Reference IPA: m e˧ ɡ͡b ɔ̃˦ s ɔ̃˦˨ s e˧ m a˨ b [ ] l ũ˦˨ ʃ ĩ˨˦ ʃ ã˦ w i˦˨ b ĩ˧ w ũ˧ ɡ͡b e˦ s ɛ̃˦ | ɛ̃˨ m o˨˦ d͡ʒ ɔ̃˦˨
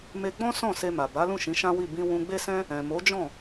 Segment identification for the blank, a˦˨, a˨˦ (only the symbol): a˨˦